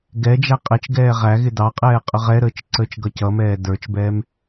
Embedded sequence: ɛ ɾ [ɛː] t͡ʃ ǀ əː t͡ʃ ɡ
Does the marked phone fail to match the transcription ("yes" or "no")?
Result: yes